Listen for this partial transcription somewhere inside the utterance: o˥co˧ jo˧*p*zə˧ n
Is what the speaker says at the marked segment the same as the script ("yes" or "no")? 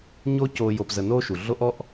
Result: yes